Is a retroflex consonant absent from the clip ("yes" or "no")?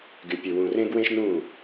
yes